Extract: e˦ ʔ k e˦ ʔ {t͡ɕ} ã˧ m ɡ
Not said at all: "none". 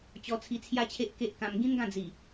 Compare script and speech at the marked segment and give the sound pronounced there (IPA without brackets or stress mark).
k